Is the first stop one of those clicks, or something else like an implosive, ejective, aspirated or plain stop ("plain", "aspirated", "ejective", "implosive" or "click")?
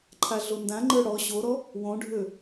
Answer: click